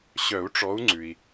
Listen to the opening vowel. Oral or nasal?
oral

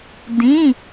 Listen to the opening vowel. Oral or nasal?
nasal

